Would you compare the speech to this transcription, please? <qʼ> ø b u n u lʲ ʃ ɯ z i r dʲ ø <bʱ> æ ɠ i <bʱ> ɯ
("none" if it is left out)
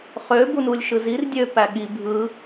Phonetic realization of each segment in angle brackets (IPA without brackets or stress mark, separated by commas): χ, p, bʱ